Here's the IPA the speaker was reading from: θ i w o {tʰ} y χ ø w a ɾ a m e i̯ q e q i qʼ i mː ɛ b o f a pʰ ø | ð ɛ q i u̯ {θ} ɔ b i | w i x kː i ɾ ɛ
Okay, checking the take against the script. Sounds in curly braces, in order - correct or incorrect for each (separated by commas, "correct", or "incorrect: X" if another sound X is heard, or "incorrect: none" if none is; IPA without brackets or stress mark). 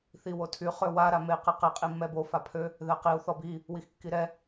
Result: correct, correct